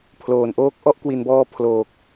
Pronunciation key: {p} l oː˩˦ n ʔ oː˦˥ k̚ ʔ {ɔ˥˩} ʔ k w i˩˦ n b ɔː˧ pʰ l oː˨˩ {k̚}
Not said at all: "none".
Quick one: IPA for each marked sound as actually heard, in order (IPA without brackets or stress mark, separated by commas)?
pʰ, ɔ˥˩, k̚